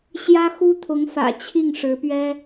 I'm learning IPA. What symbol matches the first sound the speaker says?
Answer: ɕ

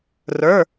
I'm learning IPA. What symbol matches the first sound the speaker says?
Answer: r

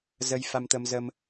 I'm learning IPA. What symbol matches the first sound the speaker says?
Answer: z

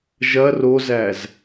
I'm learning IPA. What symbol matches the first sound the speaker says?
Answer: ʒ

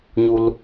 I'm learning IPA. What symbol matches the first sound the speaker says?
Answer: ɲ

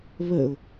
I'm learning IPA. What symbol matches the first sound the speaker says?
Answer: β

